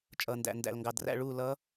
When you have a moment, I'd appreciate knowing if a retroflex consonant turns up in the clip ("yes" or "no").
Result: yes